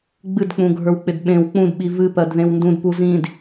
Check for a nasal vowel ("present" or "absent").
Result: present